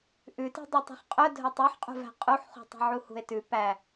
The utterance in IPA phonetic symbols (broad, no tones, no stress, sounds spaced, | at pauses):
ʔ ʉ t i̤ dˤ ø tˤ ṳ χ qʼ œ dʱ œ tˤ ʉ ħ qʼ ṳ v æ̤ qʼ u ħ χ ṳ tˤ i̤ ʕ u h ṳ e̯ t ʉ p æ